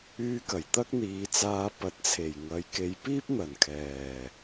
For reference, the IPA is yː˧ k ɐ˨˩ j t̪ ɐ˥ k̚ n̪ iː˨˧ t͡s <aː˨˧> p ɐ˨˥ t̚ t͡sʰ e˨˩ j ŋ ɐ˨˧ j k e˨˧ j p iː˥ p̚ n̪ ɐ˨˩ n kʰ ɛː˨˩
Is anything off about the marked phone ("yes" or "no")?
yes